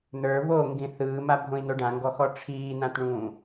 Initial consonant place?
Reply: alveolar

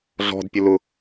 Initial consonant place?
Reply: alveolar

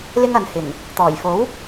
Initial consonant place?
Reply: alveolar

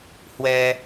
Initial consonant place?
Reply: glottal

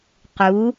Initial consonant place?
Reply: uvular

